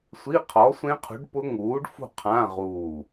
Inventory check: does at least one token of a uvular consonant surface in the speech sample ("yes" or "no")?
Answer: yes